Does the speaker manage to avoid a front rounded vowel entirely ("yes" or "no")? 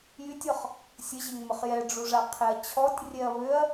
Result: no